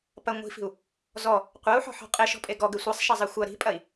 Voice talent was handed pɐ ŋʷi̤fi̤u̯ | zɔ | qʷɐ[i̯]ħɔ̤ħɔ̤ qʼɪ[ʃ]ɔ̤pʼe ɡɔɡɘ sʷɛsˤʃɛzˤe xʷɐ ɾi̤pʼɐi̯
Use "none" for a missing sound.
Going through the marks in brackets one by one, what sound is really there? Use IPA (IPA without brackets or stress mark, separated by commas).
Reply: u̯, ʃ